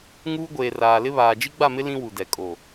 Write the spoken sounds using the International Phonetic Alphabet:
ŋ uː˦ ɡʷ eː˨ r aː˨ l ɪ˦ β aː˨ d͡ʒ i˦ ɡ͡b a˦˨ m ɪ˦ l ĩ˦ w u˨ d ɛ˨ kʼ o˨

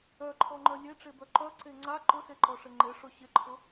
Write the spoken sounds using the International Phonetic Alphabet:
œ ǃʰ ɔ ŋ͡ǃ œ lʲ e ʈ͡ʂ e b œ ǃ œ ǀ e ŋ͡ǀ a ǃ ʊ s e ǃ ɔ ʂ ɪ ŋ͡ǃ ɪ ʂ ʊ ɕ ɪ ǃʰ ʊ

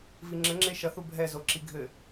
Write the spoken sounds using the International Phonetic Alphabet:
v i ŋ͡ǁ ɘ ŋ͡ǁ e ʃ ɐ θ u bʱ ɛ z o ǁ i ɡʱ ɘ

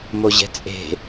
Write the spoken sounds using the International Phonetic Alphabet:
m o ʑ ɛ̤ t͡sʼ e̤

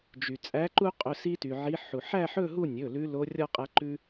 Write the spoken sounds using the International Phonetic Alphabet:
d͡ʒ y˩ t͡sʼ æ˨˥ ǃ u˦ qʼ ɵ˩˧˩ s i˦ t y˩ ʕ i˨˥ ħ u˩ ħ æ˥˨ ħ ɵ˥˨ ɦ u˥˨ nʲ ɵ˩˧˩ l ʉ˨˥ l o˨˥ rʲ ɔ˦ qʼ æ˨˥ ǃ ʉ˦

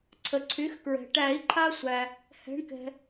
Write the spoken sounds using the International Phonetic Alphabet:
ǀʰ ə˩ ǀʰ y˩˥ x k ɹ ɛ̤˩ ʈ æ˨˩˦ i̯ ǃʰ a˦ sʷ æ˩ | h ɛ̤˩˥ ɳ k ɛ̤˩

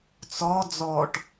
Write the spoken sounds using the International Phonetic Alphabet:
t͡s ɔ d͡z ɔ ʈ

